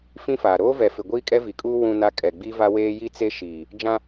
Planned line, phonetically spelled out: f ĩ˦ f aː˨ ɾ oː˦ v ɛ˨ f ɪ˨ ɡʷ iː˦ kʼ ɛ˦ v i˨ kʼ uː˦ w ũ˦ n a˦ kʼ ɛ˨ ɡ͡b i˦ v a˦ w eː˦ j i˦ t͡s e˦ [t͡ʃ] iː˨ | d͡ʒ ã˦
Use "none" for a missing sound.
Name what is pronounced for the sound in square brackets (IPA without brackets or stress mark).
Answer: ʃ